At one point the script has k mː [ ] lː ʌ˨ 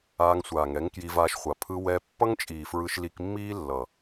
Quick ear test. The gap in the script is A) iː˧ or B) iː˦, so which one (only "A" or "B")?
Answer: B